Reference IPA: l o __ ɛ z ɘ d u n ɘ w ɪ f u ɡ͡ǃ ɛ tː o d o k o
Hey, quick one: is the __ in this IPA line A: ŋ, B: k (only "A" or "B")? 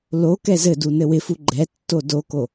B